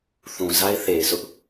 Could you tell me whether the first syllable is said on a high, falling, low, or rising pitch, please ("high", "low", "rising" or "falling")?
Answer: low